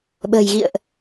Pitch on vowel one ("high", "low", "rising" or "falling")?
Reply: low